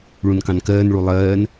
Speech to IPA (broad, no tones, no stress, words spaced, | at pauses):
ɭũnkɑ̃nkɜːn ɭulˠɜːn